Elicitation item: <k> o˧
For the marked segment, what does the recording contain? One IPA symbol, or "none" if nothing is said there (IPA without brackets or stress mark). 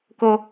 k